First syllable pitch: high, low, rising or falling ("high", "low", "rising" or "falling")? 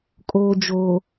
low